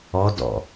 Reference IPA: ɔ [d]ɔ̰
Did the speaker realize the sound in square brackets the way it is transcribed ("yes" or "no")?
yes